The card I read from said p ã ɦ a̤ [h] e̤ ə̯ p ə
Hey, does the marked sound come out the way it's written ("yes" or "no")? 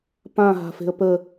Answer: no